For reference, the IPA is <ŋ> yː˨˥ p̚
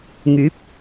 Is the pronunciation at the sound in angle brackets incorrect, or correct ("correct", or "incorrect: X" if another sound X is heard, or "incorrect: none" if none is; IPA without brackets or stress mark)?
correct